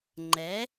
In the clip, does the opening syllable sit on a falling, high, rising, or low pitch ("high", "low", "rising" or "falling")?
rising